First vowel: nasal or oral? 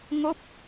oral